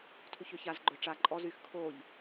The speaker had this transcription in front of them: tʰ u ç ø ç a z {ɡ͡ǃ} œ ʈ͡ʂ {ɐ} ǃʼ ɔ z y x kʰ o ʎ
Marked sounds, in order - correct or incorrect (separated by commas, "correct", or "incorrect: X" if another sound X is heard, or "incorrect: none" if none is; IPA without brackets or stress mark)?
correct, incorrect: a